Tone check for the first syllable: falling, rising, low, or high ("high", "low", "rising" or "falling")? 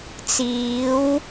rising